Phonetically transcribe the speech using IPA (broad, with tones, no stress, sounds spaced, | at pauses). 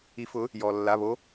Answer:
i˨˦ f ʊ˨˦ | j ɔ˩ lː a˩˧˩ β o˨˦